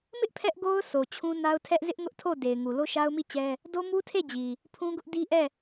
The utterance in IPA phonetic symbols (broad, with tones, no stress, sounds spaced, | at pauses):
m ɪ˦ ʔ pʰ ɛ˦ ʔ ɡ o˦ ʊ̯ s o˨ t͡ɕʰ ũ˦ n a˦ ʊ̯ tʰ ɛ˦ ʔ z ɪ˦ ʔ ŋ ʊ˦ ʔ tʰ o˦˨ d e˨ ɪ̯ ŋ u˨ l o˦ ʃ a˦ ʊ̯ m i˦˨ t͡ɕ ɛ˦ | d o˦ m u˦ tʰ e˦˨ d͡ʑ i˨ | pʰ ũ˦ ɡ ʊ˦ ʔ d i˦ ʔ ɛ˦˨